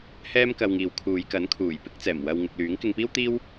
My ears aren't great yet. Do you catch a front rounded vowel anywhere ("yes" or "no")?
yes